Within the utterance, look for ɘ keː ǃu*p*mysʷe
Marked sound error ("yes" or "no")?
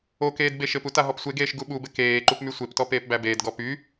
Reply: no